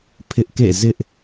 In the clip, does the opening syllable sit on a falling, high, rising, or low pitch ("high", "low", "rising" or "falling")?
high